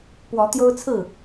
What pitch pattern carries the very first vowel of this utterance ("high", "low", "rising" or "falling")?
rising